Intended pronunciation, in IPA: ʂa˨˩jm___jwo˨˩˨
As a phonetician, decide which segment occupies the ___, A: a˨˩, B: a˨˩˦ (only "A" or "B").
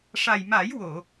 B